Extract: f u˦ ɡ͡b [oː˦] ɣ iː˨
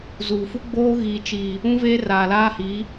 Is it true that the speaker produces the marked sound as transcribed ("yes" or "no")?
yes